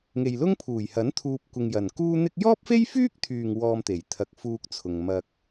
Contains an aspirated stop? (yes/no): yes